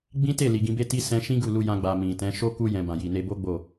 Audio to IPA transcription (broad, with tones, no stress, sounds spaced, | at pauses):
ɡ͡b ĩ˦ t e˦˨ l i˨ ɡ ĩ˧ b e˦ t i˦ s ɛ̃˧ ʃ ĩ˦ ɡ u˦˨ l u˧ j ã˧ ɡ͡b a˨ m ĩ˨ t ɛ̃˨˦ ʃ o˦ k u˧ j ɛ̃˨ b ã˨ j i˨ n e˧ b o˦ ɡ͡b o˦˨